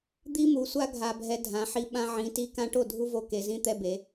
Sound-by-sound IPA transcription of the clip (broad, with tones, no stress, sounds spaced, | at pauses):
d̪ i˦ m u˨˦ sʷ a˦ ɡʱ a˦ bʱ ɛ˦ dʱ ã˨˦ ħ i˦ ɓ ã˦ ʕ ĩ˨˦ t i˦ k ã˦ ʈ o˥˩ dʱ u˦ v o˨˦ k e˨˦ z ĩ˦ t̪ ɛ˦ b e˨˦